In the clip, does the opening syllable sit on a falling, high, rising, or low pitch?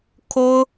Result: high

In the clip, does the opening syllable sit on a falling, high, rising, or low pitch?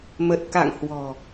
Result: low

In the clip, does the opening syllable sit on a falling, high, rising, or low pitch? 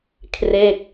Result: falling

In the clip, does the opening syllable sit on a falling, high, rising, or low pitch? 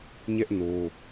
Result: high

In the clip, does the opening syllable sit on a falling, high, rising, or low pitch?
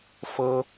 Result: high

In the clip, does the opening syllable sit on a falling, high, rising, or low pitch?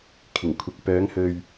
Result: low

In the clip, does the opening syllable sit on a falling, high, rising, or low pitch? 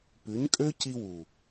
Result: rising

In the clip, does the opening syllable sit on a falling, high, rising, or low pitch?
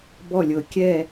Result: falling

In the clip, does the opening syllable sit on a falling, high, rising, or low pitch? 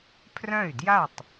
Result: falling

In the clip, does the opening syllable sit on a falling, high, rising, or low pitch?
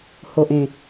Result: low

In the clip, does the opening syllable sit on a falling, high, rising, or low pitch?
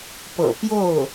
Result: low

